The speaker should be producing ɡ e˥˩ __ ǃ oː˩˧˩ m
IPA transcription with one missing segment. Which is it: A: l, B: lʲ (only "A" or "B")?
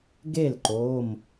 A